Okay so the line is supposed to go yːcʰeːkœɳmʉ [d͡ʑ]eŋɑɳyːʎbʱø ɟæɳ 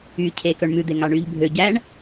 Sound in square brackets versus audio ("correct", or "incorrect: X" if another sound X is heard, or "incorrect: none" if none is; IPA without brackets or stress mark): incorrect: d̪